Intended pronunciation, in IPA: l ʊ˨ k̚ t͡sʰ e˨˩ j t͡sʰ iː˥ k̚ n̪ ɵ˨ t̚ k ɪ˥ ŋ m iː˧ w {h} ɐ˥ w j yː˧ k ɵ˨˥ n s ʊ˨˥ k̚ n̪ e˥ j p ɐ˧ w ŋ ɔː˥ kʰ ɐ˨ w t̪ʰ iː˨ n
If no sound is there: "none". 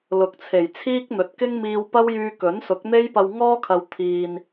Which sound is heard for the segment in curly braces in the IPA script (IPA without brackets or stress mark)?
p